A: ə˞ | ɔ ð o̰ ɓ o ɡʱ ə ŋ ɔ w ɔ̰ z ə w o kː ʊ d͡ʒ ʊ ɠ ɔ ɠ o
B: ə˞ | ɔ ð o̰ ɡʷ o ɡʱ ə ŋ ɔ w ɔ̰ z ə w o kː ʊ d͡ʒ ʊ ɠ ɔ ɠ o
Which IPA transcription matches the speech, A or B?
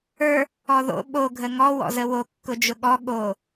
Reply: A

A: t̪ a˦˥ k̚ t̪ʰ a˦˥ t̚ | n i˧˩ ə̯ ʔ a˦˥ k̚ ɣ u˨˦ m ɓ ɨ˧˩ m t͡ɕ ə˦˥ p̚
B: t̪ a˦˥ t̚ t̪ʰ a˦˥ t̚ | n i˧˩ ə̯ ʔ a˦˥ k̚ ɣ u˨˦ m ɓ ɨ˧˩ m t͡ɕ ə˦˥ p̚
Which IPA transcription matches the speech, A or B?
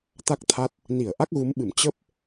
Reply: A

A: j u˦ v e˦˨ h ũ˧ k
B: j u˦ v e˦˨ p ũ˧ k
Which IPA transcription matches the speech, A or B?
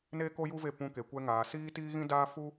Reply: B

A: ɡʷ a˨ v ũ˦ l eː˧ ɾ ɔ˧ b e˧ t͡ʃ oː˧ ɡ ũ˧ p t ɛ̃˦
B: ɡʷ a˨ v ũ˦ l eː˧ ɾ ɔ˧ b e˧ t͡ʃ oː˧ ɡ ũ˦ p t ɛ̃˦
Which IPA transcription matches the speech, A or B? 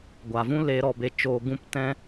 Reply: B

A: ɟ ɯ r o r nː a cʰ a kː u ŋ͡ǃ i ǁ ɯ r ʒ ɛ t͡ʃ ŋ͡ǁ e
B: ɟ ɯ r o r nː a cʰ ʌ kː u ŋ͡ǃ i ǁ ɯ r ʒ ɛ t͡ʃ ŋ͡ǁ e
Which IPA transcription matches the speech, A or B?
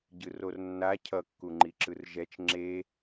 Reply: B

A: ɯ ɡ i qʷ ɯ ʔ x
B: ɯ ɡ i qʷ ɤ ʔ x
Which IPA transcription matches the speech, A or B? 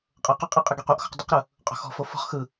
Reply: A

